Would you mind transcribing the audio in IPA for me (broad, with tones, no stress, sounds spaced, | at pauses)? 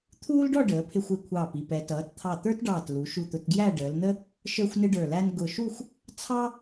t̪ʰ uː˥ l ɖ ɔ˥˧ ɖ əː˩˧ pʰ ɪ˧ xʷ ɪ˧˩ kʷʰ ɑː˧˩ p i˧˩ p ɛ˩˧ t ʌː˩˧ t t̪ʰ ɑ˧˩ t̪ ə˞˥ t ɖ ɑː˧˩ t l u˩˧ ʃ u˧˩ t̪ ʊ˧ t ɡ j æ˥˧ ɖ əː˩˧ l n̪ ə˥ | ʃ ə˞˥ xʷ n ɪ˥ ɖ ə˞˧˩ l æ˥ n ɡ ʊ˧˩ ʃ u˥˧ xʷ | t͡sʰ ɑ˥